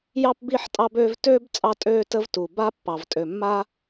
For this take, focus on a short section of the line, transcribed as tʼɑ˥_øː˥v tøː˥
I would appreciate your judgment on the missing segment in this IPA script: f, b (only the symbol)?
b